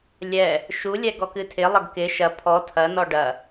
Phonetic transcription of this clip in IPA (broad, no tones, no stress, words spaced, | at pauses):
lʲɛ | ʃulʲɛ ɡɔkɨtʰɪlˠɐɡ kɪ ʃɐ pʰɔ tʰɐnɔ ɖɐ